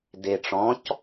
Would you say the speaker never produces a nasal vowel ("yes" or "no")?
no